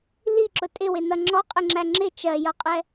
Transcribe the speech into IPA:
liǁʊ tʼɪwɪnʌ ŋ͡ǁɔqʼɪŋ͡ǁæ ŋ͡ǁɪ t͡ʃɜjʌqʼɛ

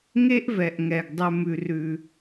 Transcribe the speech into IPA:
ŋe˦ʔvɛ˨ʔŋɛ˨ɡ dˤʉ˦mʉ˦rʉ˦

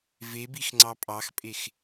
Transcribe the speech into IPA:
vebix ŋ͡ǀɑpʼɑxpʼex

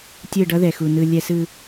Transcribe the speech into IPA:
tʲɯ˦˨ɖʌ˦ðɛ˨xu˨ nɯ˨ lʲɛ˨sɯ˨

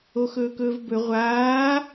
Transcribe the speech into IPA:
oxɵːkɵːvbɵ ʁʷaː

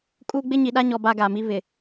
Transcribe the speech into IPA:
kʼuː˦ ɡ͡bɪ˦ɲi˨ɗa˦ɲɔ˨ ba˦ɡa˨mi˦ βɪ˨

